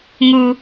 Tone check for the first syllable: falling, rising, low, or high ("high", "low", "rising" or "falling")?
high